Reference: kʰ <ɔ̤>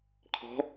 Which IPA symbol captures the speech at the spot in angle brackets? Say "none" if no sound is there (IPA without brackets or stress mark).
ɔ̤